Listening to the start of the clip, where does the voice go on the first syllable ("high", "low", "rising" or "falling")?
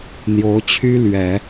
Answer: rising